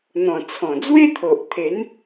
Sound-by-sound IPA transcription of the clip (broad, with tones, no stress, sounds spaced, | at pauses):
n̪ ɔ̃˨˩ t͡sʰ ɔ̃˨˩ d͡z w e˦ t̪ʰ o˨ ʔ t̪ʰ e˨˦ n